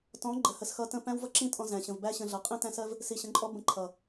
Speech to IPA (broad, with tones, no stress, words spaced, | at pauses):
tɔ̃˨˦ ɡ͡ǃə˨hə˨sxʌ˧ tə̃˧ pæ̃˦wvʌ˦ǁĩ˦ tʼɔ̃˧zæ̃˨ ɕə̃˨vbæ˦ɕə̃˧ ɮʌ˨qʼĩ˦tæ̃˦sɜ˦v | si˨ɕə̃˨˦ǃʼɔ˦ bə̃˧ǃʰʌ˨